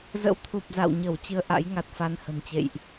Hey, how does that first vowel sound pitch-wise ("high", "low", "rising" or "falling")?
rising